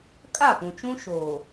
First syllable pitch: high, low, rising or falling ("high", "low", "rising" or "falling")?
falling